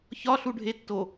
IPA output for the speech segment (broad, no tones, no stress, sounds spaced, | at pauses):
ç ɒ ɬ u ɖʱ e tː o